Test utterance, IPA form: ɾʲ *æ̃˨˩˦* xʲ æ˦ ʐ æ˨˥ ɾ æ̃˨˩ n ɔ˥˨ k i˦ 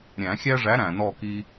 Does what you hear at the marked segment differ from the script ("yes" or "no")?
no